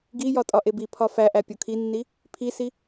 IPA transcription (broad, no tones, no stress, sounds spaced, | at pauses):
ɡ i j ɒ tʼ ɒ ʔ e b i pʰ ɒ f æ ʔ æ pʲ o kʰ i nː i | pʰ i s i